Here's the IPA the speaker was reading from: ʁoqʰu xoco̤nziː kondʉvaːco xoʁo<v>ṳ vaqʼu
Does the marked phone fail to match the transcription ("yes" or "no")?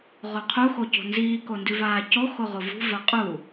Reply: no